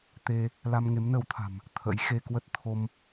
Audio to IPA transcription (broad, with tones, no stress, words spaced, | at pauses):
t̪e˧ | la˧mŋe˨˦mnə˨˦wt̪ʰa̤˨˩m | t̪ʰə̰˧˥jxe˧kwə˦˥t̚ t̪ʰo˧m